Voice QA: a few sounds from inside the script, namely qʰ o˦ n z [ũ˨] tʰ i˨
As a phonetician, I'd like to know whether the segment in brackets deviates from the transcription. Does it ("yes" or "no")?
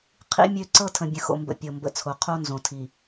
yes